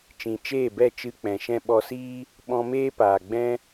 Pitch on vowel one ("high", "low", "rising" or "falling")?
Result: low